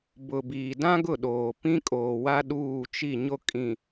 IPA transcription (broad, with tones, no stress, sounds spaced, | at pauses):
b ʊ˨ b iː˨ d ã˦ ɡ ʊ˦˨ ɗ oː˨ p ĩ˦ kʼ oː˨ w a˦ ɗ uː˦˨ t͡ʃ i˦˨ ɲ o˦ kʼ ĩ˨